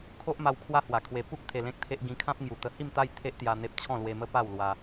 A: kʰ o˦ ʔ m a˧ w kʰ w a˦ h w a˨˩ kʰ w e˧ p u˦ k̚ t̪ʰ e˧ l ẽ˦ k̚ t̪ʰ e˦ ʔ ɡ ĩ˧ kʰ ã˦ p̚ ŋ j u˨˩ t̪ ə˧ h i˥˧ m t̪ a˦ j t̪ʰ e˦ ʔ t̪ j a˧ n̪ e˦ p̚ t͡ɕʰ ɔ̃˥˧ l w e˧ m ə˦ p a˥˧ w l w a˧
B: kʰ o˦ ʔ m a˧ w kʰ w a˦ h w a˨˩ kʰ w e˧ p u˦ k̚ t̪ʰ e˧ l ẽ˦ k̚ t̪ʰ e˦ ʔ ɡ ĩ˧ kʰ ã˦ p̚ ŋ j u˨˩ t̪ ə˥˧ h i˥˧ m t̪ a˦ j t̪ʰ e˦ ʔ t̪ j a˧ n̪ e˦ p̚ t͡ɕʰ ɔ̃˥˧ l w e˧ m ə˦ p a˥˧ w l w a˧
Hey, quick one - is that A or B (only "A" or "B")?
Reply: A